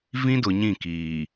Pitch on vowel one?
high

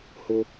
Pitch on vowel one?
high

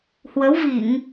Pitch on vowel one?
rising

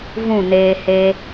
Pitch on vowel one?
falling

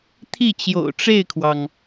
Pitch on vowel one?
falling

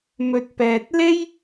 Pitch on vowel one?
low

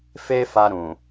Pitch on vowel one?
high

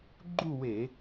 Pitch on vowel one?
falling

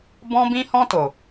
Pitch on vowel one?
high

